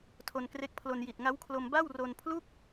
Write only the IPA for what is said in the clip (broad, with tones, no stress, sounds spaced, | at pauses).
tʰ o˧ n k r e˦˥ k̚ pʰ l o˧ n j i˨˩ t̚ ŋ a˦˥ w kʰ l o˧ m b a˥˩ w r o˧ n pʰ l u˥˩ k̚